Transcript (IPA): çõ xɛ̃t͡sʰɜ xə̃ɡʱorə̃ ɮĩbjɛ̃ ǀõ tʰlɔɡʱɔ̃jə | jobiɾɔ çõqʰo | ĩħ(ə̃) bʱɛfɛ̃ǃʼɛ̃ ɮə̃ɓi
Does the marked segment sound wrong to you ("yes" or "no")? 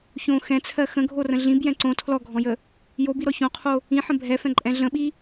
no